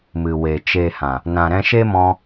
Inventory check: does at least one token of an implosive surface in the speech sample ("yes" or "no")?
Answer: no